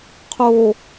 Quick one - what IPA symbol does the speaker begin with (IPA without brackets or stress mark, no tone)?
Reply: qʰ